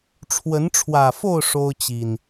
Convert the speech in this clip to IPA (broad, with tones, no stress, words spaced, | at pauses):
ʈ͡ʂʰwə˨˦nʈ͡ʂʰwä˨˩fo˥˨ʊ̯ ʂo˦ʊ̯t͡ɕi˨˩n